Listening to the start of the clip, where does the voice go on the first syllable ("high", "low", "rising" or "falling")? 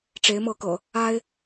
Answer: rising